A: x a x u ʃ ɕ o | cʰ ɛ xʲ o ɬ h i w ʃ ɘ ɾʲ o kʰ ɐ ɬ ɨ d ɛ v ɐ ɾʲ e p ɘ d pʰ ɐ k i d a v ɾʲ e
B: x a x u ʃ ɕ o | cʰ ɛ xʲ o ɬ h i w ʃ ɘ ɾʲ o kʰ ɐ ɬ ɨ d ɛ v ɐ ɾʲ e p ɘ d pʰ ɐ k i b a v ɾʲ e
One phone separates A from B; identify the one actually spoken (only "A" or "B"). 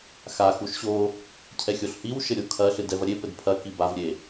B